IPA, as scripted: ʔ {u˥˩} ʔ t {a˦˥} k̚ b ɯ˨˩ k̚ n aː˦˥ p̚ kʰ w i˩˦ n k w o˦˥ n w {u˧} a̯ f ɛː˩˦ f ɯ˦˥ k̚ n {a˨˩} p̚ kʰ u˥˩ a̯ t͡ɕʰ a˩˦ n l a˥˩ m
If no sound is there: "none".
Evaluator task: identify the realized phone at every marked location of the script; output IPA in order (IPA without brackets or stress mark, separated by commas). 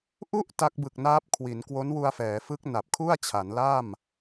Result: u˥˩, a˦˥, u˧, a˨˩